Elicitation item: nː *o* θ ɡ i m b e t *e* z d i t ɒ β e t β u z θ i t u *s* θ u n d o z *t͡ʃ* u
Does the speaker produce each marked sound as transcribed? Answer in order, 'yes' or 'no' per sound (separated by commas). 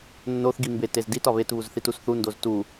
yes, yes, yes, no